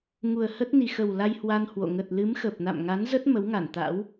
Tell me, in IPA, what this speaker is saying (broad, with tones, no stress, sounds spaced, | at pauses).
ŋ u˨˩ ə̯ h ə˦˥ t̚ n i˨˩ x ə˨˩ w l a˧ j h w a˧ n h w o̰˧˨ ŋ ə˨˩ t̚ l ɨ˨˦ m x ə˨˩ p̚ n a̰˧˨ m ŋ a˨˦ n z ə˦˥ t̚ m ə˨˦ w ŋ a˧˩ n t̪ a̰˧˥ w